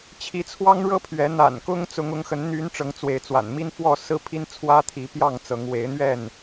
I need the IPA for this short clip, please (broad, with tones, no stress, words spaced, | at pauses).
t͡ɕʰi˨˦t͡sʰwɑ˦ŋɻɤ˦pʰɥɛ˨˦ n̪a̰˨˩nkʊ˦ŋ t͡sʊ˨˦ŋʊ˨˦ŋxə˨˦n n̪y˨˦n ʈ͡ʂɤ˨˦ŋt͡swe˨˦ɪ̯t͡swa̰˨˩n mi˦nfwɔ˥˨sɹ̩˦ pʰi˦nt͡sʰwä˦t̪ʰi˨˦pjɑ˥˨ŋ t͡sɤ˨˦ŋ we˨˦ɪ̯n̪ɥɛ˥˨n